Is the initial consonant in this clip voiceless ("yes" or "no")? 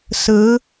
yes